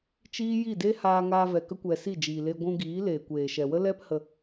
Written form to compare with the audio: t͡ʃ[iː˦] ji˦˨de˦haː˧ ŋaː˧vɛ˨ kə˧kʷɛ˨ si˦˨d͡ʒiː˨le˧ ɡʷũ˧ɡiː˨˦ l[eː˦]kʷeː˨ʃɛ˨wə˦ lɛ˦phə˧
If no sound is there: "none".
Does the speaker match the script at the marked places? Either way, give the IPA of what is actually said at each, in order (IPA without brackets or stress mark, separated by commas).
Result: iː˦, eː˨